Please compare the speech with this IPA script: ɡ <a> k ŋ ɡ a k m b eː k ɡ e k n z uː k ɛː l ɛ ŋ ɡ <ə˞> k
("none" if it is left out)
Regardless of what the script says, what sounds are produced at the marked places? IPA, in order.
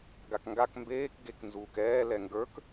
a, ə˞

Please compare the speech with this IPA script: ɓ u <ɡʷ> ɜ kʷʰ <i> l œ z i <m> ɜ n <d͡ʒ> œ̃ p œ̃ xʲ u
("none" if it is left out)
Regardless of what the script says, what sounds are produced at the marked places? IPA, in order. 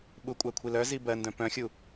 kʷʼ, i, b, d

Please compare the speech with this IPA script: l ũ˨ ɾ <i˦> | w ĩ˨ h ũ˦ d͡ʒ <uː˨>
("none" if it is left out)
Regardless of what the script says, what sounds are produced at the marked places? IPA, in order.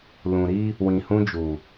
iː˦, uː˨

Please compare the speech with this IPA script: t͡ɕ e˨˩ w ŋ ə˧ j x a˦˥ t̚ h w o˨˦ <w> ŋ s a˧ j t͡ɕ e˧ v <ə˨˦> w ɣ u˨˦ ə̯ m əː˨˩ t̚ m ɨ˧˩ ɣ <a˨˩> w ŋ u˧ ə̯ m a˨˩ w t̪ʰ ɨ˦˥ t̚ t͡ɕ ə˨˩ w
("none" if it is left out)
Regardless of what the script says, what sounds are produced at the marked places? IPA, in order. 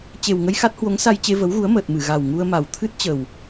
none, ə˨˦, a˨˩

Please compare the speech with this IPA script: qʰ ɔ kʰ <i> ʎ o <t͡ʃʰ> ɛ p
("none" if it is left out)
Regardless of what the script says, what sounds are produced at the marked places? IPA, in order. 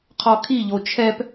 i, t͡ʃʰ

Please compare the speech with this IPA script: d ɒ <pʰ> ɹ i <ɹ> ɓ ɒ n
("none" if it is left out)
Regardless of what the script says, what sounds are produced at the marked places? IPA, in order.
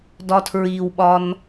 tʰ, w

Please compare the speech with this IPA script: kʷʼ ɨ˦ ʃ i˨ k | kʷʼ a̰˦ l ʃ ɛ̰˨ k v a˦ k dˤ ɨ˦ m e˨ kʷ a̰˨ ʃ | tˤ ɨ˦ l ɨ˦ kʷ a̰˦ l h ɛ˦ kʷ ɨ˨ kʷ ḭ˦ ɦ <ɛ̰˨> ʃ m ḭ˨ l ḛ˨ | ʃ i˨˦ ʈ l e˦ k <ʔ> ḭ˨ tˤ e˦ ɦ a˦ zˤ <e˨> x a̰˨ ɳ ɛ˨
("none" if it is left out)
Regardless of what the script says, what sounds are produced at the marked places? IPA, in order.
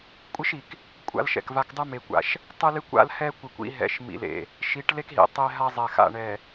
ɛ̰˨, ɦ, ɛ˨

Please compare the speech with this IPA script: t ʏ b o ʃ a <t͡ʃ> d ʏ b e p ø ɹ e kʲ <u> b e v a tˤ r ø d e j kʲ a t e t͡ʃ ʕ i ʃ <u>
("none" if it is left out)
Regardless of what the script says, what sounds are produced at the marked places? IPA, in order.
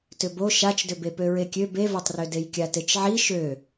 t͡ʃ, ø, ø

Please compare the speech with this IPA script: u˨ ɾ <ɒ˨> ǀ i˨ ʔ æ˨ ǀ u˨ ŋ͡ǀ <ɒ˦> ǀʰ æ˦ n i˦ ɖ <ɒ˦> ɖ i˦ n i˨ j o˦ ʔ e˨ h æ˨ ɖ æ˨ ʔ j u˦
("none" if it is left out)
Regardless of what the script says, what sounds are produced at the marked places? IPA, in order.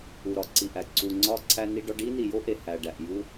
ɒ˦, ɒ˦, ɒ˦

